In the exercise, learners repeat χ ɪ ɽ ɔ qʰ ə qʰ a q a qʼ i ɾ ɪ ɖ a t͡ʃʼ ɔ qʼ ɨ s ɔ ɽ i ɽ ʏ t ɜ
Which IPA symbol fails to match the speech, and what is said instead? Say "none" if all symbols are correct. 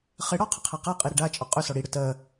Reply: ɨ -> ʏ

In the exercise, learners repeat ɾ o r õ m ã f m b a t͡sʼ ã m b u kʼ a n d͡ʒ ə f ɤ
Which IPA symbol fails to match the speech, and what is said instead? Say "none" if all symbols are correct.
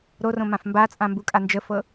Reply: none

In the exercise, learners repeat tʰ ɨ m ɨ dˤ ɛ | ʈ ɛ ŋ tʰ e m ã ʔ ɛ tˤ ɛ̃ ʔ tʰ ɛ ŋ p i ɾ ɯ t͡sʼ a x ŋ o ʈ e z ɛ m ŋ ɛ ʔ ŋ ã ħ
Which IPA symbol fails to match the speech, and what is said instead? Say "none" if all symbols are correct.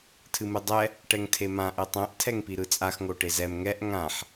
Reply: none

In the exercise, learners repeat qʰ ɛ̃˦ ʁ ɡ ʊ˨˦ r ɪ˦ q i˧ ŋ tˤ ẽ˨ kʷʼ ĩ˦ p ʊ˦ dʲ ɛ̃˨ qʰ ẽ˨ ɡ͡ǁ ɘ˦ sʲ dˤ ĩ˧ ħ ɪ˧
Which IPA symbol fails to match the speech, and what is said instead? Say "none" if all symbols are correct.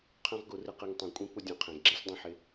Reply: ɘ˦ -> ɛ˦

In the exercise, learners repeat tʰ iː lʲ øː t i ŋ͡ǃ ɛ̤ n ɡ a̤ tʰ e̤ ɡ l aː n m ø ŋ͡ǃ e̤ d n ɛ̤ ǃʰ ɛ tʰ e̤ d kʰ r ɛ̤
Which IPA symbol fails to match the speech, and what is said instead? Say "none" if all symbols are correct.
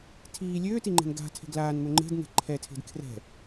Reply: none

